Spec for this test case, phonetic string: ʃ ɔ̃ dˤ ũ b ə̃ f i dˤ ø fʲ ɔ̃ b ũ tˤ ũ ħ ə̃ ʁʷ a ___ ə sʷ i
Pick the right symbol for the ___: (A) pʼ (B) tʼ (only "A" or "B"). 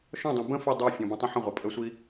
A